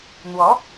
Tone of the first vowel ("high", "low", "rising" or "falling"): rising